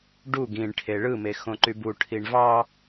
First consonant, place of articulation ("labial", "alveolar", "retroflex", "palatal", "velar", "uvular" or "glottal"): retroflex